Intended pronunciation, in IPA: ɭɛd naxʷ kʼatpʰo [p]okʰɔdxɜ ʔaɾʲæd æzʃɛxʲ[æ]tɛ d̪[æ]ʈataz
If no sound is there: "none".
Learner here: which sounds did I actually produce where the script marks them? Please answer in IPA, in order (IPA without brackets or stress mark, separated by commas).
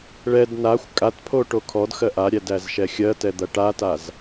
ʈ, ɜ, ɐ